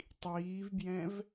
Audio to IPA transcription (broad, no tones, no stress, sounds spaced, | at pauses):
tˤ iː v b j ɛ̃ v